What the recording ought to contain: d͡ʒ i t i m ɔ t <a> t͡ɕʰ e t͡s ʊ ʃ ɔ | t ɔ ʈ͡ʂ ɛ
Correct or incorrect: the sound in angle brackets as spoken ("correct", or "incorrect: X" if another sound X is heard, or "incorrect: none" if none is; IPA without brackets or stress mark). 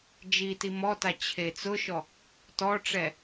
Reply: correct